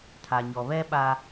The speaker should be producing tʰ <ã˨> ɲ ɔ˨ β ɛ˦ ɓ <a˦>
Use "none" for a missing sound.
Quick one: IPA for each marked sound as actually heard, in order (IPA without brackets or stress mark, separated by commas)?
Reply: a˨, a˦